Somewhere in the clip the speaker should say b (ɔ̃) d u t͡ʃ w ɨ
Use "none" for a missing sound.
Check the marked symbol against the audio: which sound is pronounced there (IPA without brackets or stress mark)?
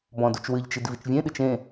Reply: ɔ̃